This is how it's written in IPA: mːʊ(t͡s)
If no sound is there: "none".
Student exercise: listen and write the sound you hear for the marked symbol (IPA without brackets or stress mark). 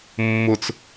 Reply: t͡s